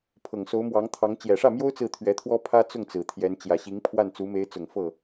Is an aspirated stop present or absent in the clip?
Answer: present